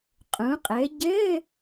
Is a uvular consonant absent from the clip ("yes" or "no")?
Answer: no